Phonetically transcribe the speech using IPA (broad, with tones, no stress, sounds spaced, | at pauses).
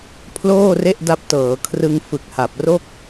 pʰ l oː˥˩ r e˥˩ ʔ d a˦˥ p̚ t ɤː˩˦ kʰ r ɯ˧ ŋ f ɯ˨˩ k̚ h a˨˩ p̚ r o˥˩ k̚